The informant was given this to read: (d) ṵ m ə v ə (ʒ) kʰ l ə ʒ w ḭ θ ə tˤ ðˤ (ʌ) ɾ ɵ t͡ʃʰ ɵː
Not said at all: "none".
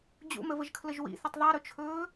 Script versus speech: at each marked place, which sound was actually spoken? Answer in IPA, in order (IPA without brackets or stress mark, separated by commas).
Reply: d͡ʑ, ʒ, a